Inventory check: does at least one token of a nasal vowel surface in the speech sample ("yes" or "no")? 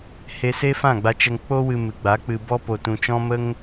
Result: yes